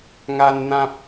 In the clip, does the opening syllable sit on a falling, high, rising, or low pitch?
high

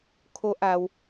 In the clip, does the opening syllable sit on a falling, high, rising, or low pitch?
high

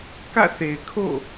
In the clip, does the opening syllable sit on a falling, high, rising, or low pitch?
falling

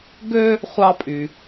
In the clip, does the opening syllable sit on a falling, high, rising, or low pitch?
high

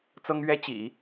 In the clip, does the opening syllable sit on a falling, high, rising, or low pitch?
high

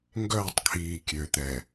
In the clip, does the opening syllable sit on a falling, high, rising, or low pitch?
falling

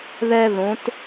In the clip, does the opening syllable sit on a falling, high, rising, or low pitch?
high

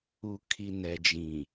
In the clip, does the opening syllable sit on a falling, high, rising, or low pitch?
low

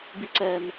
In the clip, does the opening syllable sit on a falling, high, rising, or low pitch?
high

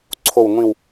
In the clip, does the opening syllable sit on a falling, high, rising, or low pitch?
falling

